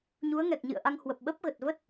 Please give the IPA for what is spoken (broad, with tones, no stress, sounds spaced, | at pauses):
ɲ u˨˦ ə̯ ŋ ɛ˨˩ k̚ ɲ ɨ̰˧˨ ə̯ ʔ a˧ ŋ h w ə˨˩ p̚ ɓ ə˦˥ p̚ ɣ ə˨˩ t̚ v ə˦˥ t̚